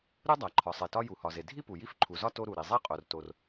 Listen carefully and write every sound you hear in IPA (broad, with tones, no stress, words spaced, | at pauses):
ɾu˥ dˤæ˩ǃʰɒ˩sˤe˩tɒ˥ ju˩hɒ˩ ze˩dʱi˥ pu˩ji˥fǃʰu˩zɒ˥ to˥ɾu˩ɾi˩ zˤe˥qʼo˩rto˩r